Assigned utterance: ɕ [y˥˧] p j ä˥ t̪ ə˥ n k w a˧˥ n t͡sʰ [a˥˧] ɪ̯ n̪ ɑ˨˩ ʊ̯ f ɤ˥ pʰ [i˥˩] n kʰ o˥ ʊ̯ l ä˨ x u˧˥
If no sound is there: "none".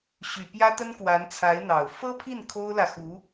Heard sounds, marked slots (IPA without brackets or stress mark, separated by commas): y˨˩, a˧˥, i˥˩